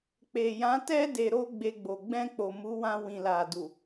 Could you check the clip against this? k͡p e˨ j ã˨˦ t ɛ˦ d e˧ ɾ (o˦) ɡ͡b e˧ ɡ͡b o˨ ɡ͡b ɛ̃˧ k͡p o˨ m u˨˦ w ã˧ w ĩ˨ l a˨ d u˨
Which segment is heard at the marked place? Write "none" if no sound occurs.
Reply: o˦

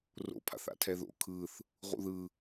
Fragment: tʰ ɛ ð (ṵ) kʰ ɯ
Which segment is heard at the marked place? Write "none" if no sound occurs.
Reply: o̰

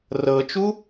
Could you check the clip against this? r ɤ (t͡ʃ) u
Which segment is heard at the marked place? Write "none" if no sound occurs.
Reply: t͡ʃ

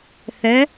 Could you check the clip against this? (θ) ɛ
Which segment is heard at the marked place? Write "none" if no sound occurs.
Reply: θ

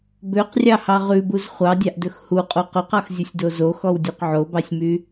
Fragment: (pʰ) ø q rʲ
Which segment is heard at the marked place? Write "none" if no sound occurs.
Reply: b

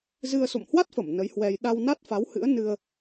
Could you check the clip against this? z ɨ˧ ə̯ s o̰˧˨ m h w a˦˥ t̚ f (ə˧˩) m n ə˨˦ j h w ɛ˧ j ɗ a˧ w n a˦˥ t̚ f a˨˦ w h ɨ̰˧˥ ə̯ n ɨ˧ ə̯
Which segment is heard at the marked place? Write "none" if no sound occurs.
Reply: ə˧˩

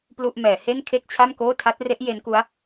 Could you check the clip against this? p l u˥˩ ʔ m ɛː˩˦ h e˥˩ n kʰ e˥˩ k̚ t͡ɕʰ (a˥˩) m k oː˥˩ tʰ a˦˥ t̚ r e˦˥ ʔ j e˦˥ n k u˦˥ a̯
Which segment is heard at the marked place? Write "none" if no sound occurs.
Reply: a˥˩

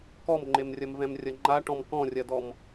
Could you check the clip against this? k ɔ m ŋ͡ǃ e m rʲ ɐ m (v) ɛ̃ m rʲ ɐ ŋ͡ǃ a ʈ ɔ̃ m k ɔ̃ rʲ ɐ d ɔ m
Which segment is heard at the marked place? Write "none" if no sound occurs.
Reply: v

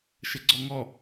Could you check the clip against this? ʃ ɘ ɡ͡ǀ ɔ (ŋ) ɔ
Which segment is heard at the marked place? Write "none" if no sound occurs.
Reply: ŋ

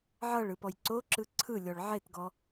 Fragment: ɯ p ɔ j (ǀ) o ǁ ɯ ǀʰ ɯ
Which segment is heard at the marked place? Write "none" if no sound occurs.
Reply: ǀ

